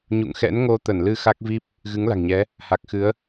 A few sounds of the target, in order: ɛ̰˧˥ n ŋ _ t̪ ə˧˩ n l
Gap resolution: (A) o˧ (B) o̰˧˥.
A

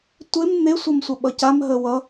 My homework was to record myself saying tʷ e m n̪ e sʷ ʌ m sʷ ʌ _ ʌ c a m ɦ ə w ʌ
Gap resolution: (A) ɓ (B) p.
A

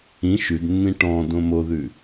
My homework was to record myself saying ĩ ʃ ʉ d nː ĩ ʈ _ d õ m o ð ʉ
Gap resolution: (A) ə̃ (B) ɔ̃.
B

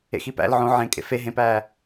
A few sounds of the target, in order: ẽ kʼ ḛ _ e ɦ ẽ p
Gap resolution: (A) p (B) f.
B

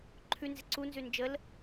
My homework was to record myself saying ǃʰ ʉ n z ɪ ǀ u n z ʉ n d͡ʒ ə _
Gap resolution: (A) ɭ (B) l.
B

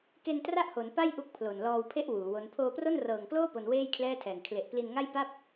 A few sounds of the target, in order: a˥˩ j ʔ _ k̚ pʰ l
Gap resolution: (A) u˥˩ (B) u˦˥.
B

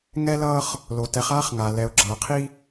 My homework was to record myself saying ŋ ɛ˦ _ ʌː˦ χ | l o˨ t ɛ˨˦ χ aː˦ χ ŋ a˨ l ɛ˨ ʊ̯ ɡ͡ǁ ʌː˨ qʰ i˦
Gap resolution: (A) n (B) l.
B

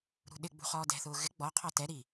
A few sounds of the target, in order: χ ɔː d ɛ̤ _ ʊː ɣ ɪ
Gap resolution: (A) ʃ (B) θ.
B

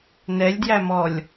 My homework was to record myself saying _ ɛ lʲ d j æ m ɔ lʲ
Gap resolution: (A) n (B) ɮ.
A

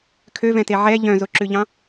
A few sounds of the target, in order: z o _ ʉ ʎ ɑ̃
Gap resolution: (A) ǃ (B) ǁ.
B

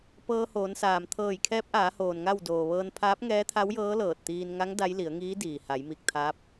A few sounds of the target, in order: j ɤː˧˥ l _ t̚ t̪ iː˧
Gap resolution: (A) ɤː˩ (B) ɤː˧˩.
B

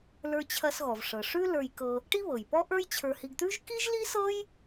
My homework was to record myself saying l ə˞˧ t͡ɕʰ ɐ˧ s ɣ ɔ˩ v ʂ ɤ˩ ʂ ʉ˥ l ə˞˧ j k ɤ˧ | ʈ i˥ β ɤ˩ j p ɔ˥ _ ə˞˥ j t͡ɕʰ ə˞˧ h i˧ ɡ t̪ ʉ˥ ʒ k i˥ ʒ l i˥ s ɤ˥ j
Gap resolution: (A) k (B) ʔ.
B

